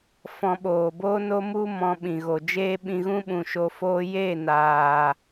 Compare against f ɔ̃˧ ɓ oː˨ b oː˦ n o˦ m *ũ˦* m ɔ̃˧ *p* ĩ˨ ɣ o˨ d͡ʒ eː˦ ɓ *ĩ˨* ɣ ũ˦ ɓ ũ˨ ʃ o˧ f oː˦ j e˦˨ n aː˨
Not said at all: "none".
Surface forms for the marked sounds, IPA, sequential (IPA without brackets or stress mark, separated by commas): u˦, ɓ, ĩ˧